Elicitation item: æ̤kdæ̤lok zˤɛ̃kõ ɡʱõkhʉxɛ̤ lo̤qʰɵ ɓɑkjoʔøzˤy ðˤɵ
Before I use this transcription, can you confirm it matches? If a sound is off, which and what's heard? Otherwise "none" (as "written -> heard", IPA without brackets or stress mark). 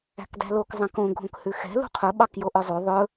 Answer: o̤ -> ṳ